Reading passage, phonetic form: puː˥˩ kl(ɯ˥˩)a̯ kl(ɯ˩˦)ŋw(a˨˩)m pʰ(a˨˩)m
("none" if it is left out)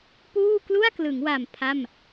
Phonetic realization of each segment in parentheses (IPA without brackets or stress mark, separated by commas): u˥˩, ɯ˩˦, a˨˩, a˥˩